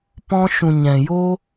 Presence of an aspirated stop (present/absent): absent